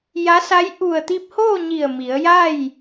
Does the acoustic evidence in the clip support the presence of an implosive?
no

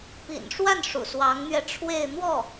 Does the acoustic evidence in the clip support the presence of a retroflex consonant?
yes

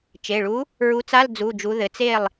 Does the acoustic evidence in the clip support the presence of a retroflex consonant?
yes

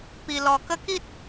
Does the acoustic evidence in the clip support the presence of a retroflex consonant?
no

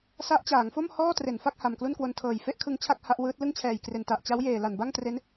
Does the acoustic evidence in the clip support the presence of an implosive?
no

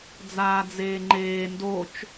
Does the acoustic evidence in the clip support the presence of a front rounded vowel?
no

